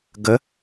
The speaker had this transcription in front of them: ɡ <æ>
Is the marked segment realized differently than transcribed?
yes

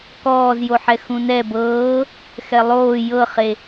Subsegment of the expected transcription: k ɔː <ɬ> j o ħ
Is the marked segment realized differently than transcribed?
yes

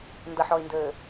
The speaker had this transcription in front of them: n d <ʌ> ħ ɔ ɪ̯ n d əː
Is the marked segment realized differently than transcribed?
no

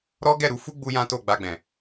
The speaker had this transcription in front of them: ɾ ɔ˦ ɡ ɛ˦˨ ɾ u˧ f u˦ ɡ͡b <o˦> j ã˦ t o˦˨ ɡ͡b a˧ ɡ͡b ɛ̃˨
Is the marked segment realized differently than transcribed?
yes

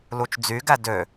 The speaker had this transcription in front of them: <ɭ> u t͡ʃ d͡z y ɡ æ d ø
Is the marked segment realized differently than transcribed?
yes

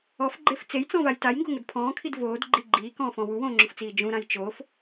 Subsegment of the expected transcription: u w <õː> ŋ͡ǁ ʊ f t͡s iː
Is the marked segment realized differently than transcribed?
no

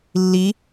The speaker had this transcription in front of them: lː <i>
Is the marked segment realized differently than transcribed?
no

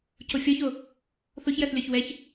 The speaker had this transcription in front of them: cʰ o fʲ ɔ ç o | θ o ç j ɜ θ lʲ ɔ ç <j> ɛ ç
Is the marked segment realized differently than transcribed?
yes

